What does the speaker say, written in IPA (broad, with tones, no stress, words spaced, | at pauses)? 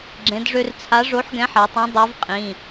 ɡ͡ǁẽ˩˧dʐø˧rt͡sʰa˨˥ ʐo˨˥ħɡɛ̃˨˥ħa˩˧tˤã˨˥ dˤø˨˥vqʼĩ˩˧˩